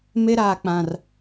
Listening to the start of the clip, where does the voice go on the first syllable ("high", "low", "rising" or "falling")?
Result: high